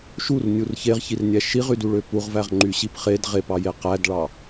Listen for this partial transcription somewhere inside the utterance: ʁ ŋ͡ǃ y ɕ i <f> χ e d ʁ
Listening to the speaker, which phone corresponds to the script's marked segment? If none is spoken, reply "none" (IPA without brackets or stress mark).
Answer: p